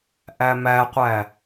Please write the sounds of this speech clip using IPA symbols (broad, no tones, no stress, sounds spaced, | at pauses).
ʔ æ m æ qʷ æ